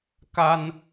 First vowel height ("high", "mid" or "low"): low